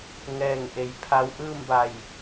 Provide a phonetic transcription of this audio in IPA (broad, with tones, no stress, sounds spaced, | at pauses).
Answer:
ŋ ɛː˧˩ ŋ ʔ e˩˧ j pʰ a˧˥ w ʔ ɯː˥˨ m b a˧˩ j